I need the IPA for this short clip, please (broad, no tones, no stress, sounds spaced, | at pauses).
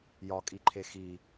j ɒ kʼ i ǃʰ e x i